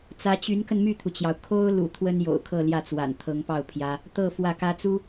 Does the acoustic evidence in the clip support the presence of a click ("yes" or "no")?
no